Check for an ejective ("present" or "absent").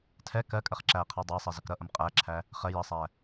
present